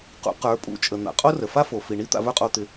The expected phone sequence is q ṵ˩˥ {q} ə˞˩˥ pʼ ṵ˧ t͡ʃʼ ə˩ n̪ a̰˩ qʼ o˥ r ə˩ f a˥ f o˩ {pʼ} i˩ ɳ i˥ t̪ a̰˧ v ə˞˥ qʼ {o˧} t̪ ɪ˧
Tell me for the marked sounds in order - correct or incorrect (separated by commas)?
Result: correct, incorrect, correct